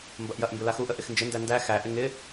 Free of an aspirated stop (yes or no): yes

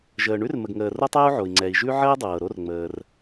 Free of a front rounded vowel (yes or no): yes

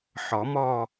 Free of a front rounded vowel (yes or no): yes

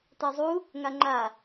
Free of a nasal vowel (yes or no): yes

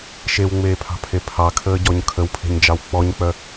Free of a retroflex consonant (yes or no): yes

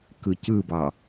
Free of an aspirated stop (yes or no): yes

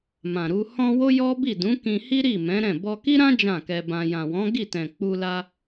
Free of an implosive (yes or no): yes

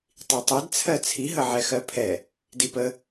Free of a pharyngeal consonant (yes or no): no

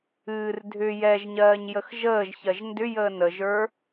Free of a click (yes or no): yes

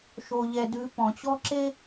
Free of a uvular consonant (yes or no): yes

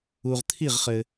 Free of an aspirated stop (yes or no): no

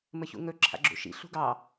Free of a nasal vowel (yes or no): yes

